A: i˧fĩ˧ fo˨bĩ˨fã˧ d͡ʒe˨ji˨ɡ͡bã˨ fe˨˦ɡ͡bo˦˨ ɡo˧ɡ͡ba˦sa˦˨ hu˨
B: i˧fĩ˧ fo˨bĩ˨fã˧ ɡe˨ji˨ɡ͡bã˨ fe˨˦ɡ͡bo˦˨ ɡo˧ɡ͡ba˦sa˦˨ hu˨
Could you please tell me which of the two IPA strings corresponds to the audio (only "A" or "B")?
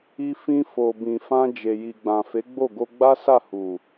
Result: A